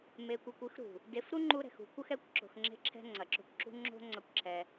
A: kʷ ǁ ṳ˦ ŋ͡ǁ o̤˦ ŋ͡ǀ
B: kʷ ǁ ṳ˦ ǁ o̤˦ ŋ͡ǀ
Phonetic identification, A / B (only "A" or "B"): A